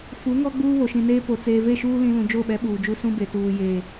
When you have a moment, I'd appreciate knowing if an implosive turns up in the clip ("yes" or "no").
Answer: yes